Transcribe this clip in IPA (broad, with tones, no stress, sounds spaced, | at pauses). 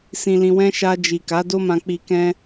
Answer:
s ĩ˨ l ĩ˨ w ɛ̃˧ ʃ a˧ d͡ʒ i˨ k a˨˦ d o˦ m ã˧ k͡p i˧ k ɛ̃˦